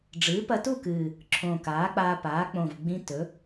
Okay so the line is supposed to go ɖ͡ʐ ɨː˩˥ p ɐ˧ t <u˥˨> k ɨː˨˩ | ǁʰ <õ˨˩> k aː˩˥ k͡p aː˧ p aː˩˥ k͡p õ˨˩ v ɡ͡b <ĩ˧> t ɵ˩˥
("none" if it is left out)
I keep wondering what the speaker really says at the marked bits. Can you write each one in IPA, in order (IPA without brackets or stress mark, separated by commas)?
u˥˨, õ˨˩, ĩ˧˥